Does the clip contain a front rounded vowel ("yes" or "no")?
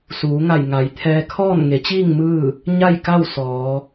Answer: no